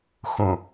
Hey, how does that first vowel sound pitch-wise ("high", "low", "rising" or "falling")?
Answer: low